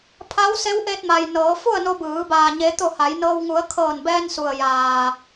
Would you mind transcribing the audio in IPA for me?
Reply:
pʰ a˧˥ w s e˧˥ w ʔ e˧ t̚ m a˩ j n ɤː˩˧ f u˥˨ ə̯ n o˧ b ɯː˩˧ b aː˩ ɲ e˩˧ t̪ o˧˩ h a˩˧ j n ɤː˧ w ŋ u˩˧ ə̯ kʰ ɤː˧˩ n b ɛː˧ n s u˩ ə̯ j aː˩

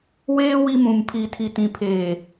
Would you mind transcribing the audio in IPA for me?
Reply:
w eː˦ w i˦ m ũ˨ m pʰ iː˨ tʰ i˨ t ĩ˨ pʰ eː˨

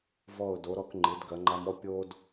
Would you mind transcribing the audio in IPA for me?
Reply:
v ɔ˧˩ ʊ̯ d o˩˧ ɾ ɔ˧ k ŋ͡ǃ ɨ˩˧ d ɡ ɐ˩˧ ŋ͡ǃ a˧ m ɔ˥ pʲ o˥ d

